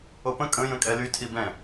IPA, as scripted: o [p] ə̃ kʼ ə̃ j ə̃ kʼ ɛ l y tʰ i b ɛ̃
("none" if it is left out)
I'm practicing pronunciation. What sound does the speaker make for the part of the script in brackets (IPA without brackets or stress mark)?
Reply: p